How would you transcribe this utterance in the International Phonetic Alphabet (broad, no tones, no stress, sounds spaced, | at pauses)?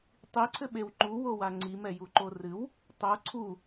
tˤ i ǀʰ ɘ ɓ e w ŋ͡ǃ u w o w a ŋ͡ǀ i m ɛ j u ǃ o r ɨ w | tˤ o ǀʰ u